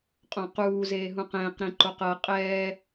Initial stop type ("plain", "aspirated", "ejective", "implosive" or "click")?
ejective